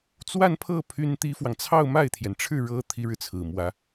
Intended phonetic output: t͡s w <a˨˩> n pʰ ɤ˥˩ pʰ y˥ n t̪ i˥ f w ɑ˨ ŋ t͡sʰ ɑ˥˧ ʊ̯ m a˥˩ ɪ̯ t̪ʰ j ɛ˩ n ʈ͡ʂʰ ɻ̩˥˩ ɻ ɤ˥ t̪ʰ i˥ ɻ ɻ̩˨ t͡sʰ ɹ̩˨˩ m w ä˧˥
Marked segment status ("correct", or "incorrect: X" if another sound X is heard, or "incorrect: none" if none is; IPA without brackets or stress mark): incorrect: a˥˧